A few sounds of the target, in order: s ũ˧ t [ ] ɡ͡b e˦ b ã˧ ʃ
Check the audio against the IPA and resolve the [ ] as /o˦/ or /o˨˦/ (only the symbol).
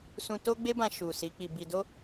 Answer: o˦